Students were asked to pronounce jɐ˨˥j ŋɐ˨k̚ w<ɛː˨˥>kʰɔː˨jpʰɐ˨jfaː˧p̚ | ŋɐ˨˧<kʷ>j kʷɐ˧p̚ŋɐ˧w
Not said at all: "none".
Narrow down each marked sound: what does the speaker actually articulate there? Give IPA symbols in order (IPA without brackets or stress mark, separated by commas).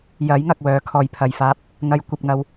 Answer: œː˨˥, none